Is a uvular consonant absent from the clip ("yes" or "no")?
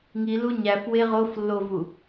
no